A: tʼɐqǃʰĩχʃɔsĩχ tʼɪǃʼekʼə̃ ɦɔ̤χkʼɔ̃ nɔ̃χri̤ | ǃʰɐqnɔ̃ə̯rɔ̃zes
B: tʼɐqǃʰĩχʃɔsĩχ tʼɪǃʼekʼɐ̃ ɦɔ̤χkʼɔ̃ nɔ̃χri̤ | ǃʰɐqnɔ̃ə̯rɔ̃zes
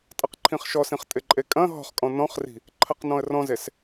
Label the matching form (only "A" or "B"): B